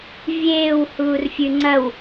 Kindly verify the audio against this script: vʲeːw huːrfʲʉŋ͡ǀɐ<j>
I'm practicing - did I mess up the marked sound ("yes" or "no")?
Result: yes